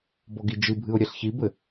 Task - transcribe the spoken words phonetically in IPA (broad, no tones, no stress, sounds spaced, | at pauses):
b ɔ ɡ i d͡ʒ ɨ bʱ ɨ ʊ̯ ɾʲ ɛ ɬ ç i b ɘ